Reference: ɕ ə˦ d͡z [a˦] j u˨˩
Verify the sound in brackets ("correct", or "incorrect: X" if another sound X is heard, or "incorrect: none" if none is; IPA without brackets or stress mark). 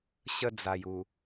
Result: incorrect: a˨˩